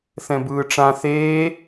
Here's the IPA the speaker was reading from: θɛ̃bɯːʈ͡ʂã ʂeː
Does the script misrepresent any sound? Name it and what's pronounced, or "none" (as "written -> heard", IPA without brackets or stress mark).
ʂ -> θ